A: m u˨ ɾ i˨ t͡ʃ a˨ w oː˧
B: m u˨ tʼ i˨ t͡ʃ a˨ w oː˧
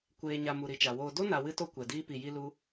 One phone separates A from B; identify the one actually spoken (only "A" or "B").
A